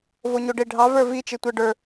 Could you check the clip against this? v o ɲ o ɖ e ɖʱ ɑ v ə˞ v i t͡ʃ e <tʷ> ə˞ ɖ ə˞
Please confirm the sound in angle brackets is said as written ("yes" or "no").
yes